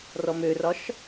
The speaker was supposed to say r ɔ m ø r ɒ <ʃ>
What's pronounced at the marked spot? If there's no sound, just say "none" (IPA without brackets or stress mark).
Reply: ʃ